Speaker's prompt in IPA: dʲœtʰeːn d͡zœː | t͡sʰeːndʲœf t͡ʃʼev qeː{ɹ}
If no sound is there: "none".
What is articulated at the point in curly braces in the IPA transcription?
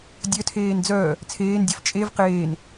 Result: n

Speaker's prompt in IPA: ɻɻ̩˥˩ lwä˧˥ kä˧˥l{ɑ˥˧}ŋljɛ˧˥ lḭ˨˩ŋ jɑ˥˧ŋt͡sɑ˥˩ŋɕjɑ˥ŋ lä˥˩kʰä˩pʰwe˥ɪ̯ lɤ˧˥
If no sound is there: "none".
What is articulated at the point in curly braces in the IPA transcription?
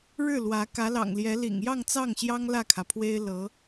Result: ɑ̰˨˩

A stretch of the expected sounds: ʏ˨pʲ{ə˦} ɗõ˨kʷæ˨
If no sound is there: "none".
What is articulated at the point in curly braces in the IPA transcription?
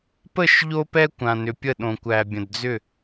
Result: ə˦˨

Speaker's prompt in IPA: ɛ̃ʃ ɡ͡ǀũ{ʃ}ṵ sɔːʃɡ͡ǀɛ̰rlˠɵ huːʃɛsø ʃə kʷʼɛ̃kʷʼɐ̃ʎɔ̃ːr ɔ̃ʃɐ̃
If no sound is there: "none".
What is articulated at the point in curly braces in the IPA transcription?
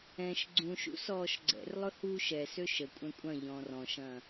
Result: ʃ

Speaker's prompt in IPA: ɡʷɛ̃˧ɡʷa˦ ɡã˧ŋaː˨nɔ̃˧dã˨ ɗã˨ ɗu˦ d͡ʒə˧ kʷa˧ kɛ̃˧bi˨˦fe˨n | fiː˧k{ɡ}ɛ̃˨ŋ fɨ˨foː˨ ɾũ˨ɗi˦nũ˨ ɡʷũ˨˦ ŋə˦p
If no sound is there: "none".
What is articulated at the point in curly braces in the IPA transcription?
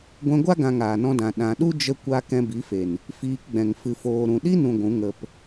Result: ɡ͡b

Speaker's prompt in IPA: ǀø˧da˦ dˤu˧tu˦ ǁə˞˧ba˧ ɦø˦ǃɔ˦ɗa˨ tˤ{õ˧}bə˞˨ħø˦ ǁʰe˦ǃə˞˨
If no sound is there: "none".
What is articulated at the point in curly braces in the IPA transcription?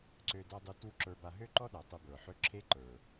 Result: o˧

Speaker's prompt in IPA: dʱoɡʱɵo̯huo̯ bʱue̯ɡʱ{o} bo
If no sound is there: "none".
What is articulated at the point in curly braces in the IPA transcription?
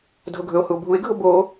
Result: o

